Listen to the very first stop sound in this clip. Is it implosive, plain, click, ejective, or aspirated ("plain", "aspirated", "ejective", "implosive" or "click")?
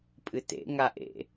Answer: ejective